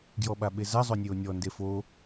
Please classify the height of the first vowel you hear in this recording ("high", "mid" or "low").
mid